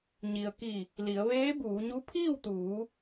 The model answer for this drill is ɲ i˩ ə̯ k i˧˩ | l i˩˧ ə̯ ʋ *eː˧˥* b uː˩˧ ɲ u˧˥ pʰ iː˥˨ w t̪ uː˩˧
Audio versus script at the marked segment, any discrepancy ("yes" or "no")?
no